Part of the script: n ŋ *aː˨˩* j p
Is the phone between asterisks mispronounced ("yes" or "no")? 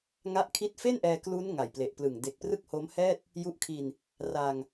yes